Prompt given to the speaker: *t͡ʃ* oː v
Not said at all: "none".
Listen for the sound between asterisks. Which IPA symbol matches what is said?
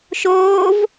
ʃ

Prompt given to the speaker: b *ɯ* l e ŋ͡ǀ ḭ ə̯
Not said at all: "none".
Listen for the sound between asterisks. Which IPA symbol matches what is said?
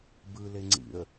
ɯ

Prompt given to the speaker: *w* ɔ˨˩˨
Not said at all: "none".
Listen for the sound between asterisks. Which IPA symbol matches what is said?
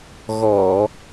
ɣ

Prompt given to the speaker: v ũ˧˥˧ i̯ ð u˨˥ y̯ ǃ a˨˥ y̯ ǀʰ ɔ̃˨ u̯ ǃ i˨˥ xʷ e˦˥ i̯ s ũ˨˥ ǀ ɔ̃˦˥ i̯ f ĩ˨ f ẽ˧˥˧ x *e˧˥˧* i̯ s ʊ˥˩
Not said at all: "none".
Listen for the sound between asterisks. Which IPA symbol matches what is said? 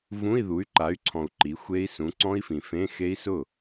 e˦˥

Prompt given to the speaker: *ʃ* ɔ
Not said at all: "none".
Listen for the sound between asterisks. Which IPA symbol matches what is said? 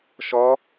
ʃ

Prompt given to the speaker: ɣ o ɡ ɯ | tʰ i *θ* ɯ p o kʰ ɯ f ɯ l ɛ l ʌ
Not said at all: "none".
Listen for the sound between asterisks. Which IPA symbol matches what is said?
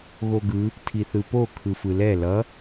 θ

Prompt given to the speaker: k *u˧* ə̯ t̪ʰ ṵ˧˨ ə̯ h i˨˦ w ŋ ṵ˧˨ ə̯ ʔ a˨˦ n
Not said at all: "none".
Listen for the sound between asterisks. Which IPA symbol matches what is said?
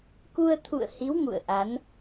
u˧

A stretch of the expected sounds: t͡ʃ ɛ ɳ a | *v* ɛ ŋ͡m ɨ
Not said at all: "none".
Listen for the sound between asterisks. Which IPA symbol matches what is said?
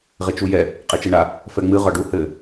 f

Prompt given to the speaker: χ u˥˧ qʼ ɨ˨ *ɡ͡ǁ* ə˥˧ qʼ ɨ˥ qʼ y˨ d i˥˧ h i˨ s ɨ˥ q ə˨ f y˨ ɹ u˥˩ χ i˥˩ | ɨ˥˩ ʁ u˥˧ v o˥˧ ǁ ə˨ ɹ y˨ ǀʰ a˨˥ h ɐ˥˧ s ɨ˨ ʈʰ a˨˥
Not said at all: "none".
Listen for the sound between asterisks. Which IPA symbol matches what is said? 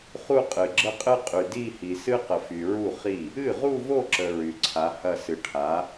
ɡ͡ǁ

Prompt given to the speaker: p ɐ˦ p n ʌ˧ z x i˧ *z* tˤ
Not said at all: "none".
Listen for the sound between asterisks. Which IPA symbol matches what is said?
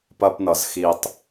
none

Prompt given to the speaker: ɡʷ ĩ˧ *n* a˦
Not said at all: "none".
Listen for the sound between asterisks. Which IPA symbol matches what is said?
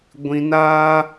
n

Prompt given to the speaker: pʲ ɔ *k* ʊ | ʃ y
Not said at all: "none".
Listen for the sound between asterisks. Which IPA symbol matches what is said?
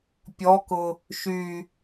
k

